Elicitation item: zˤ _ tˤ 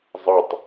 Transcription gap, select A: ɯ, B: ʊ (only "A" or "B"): A